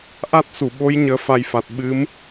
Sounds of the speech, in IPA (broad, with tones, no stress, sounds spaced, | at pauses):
ʔ a˦˥ t̚ s u˧˩ ɓ o˨˦ j ɲ əː˧ f a˧ j f a˨˩ t̚ ɓ ɨ˨˦ m